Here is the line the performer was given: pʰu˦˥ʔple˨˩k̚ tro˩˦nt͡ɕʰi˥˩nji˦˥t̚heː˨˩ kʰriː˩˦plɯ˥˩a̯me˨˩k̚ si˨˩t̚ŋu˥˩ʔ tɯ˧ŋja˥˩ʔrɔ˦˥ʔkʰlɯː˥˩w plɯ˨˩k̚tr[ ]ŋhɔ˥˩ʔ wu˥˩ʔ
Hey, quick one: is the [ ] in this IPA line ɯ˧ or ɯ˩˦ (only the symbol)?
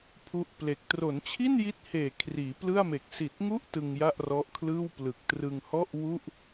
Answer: ɯ˧